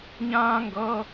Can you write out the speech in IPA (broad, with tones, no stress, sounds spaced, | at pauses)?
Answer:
ɲ ãː˥ ŋ ɡ ʌː˧˥˧